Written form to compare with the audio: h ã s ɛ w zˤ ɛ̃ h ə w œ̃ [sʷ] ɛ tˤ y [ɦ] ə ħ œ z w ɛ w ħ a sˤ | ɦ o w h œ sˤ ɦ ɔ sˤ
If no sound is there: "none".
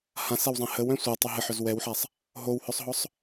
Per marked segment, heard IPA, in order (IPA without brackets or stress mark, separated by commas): sʷ, ɦ